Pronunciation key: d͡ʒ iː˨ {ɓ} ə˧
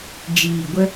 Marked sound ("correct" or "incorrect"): incorrect